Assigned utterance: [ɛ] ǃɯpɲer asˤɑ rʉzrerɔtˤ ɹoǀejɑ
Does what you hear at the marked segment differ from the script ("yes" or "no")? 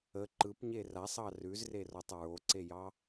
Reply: yes